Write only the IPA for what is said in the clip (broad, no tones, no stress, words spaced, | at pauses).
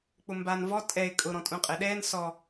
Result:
k͡pʊmban vɔ tʼɛɪ̯ kʼʊ ɾɔ̃tʼũqʼɛɗɛːn sɔ